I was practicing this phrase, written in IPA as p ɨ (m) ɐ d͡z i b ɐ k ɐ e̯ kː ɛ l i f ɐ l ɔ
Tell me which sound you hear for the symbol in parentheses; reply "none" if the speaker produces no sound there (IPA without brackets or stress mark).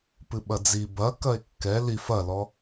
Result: ɓ